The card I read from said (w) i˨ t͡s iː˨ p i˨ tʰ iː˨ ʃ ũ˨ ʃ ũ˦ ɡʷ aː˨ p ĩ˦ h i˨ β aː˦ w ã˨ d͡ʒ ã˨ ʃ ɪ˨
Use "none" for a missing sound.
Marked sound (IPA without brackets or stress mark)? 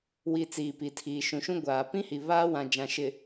w